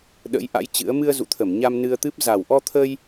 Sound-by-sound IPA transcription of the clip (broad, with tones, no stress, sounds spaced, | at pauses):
ɗ ə̰˧˥ j ʔ a̰˧˥ j t͡ɕ ɨ̰˧˥ ə̯ m ɨ˧ ə̯ z ṵ˧˨ t̪ʰ ə˧˩ m ɲ a˧ m n ɨ˧ ə̯ t̪ ɨ˦˥ p̚ z a˨˩ w ʔ ɔ˧ t̪ʰ ə˧ j